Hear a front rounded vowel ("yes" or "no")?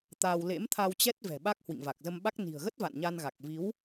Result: no